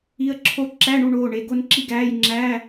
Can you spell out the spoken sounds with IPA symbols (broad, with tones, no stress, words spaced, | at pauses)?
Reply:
i˧˥ə̯ǁʰo˥˨ ǁæ˧˥˧ɳu˧ɳoː˩˧˩ ɳe˩˧˩ɡo˥˨nǁi˥˨ɡæː˧˥˧j ŋ͡ǁæː˧˥˧